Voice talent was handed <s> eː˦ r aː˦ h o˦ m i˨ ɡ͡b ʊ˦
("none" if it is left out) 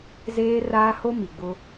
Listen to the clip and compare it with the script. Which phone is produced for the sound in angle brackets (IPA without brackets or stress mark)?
z